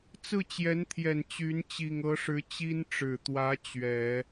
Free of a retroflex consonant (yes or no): no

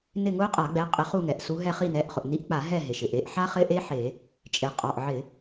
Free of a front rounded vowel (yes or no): yes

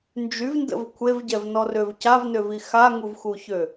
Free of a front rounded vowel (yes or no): no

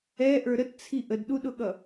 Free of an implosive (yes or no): no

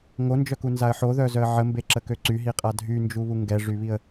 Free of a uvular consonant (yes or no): no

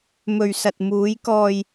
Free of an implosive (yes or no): yes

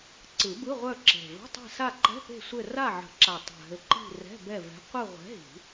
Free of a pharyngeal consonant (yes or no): no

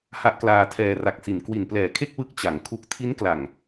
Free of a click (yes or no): yes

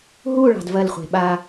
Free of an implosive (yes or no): no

